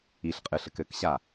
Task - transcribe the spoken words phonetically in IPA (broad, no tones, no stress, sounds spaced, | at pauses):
i ɬ qʼ ɨ ɬ ɘ k ɘ k ɕ a